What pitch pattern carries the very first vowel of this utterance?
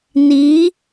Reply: rising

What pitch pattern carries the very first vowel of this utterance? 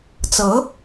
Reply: rising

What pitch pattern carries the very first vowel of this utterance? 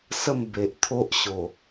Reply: falling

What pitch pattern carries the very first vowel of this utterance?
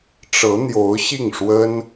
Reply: rising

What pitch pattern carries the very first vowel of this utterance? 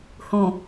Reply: low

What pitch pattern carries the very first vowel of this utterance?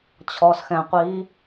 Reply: low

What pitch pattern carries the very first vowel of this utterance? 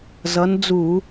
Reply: rising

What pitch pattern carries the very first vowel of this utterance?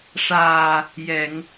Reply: low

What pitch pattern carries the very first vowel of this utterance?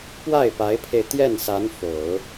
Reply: falling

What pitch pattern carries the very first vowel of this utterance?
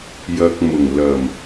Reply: low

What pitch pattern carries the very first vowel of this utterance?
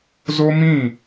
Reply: high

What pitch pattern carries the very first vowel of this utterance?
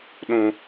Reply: high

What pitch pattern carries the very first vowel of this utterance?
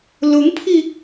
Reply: rising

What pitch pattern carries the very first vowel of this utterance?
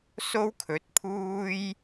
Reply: high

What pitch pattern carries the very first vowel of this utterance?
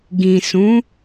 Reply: low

